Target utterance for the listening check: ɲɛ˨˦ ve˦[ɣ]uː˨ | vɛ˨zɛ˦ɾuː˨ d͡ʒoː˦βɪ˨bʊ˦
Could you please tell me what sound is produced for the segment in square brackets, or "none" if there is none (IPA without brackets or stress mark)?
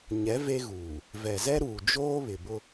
ɣ